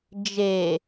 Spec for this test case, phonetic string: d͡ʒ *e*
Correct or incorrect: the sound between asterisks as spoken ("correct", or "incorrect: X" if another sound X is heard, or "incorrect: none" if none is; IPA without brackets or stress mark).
correct